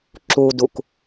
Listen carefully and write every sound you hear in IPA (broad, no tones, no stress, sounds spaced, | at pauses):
ǁ u d u k